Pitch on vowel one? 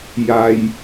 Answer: low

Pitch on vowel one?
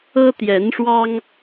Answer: high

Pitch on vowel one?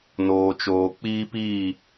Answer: low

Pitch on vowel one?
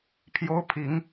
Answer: high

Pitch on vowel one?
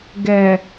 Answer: low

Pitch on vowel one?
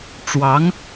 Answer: rising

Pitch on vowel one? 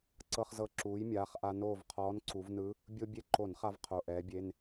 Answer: high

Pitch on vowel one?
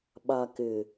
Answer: low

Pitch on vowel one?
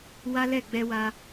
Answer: high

